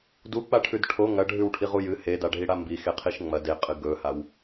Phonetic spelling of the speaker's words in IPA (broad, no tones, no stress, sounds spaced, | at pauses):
d u k͡p a ʈʰ ʉ d ʈʰ o ŋ ɐ ɖʱ ʉ w ʈʰ i ʁ u j ɨ h e d a ɖʱ i ɽ a m b i x e qʰ i ʃ ŋ͡m ɐ d e qʼ ɨ ɡ ɵ h a w